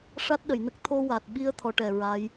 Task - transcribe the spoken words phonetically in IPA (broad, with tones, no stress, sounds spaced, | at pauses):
ʂ a˦˥ t̚ ɗ ə˨˩˨ j n ə˦˥ k̚ t̪ʰ o˧ w a˨˩ t̚ ɓ i˧ ə̯ t̪ʰ ɔ˧˥ ʈ ɛ˨˩ ɹ a˧˥ j